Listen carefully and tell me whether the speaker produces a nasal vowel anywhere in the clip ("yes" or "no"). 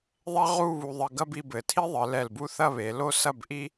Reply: no